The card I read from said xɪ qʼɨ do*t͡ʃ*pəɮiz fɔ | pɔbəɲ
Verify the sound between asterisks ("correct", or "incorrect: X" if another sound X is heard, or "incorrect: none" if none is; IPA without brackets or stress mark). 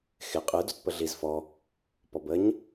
incorrect: t